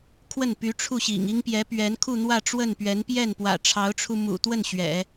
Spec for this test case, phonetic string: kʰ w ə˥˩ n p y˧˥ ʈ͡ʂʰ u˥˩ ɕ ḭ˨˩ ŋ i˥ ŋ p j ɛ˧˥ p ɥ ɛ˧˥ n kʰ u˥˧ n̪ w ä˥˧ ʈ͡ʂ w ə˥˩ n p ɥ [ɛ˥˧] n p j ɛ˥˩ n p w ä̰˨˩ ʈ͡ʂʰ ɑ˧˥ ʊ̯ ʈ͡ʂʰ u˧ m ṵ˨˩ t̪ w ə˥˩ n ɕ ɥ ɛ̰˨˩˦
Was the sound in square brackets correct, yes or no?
no